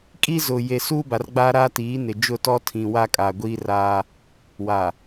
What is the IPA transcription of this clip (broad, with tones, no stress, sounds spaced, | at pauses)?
kʼ i˦ z ʊ˨ j e˨ s uː˦ b a˨ r ɡ͡b aː˦ ɾ aː˦ t iː˨˦ n ɪ˨ d͡ʒ ʊ˦˨ t ɔ˦ tʰ ĩ˨ w a˦ kʼ aː˨ ɡʷ iː˦ r aː˦ | w a˨